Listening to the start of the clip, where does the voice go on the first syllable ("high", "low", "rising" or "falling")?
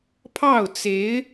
falling